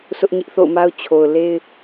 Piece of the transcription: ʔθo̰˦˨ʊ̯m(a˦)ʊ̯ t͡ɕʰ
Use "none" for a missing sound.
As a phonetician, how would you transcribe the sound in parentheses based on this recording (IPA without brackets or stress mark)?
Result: a˦